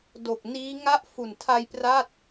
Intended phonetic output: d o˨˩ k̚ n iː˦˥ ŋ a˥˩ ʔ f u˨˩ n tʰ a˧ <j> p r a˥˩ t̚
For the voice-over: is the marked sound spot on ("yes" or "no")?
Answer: yes